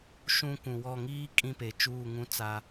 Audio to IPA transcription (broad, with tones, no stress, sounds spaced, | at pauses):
ʃ ũ˦ kʷ ũ˨ w ɔ˦˨ ŋ iː˦ kʼ ĩ˦ p e˨ t͡ʃ uː˦˨ ŋ ũ˦ t͡s a˦